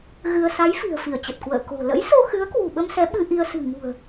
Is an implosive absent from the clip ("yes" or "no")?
no